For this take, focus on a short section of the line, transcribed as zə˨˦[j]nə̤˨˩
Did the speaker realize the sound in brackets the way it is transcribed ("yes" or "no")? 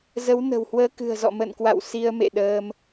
no